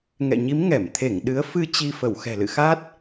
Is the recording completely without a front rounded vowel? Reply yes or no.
yes